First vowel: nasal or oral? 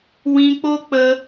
nasal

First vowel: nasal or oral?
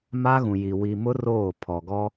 oral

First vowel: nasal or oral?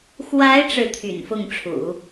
oral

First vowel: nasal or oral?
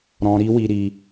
nasal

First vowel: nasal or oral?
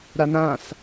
oral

